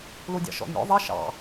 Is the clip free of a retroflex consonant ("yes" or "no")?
yes